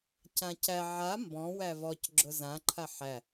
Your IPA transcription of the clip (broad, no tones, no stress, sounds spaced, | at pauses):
c ã c æ ʕ a m b ɔ̃ w æ v ɔ c ɡ͡ǁ ʊ z ã ǃʰ a ħ æ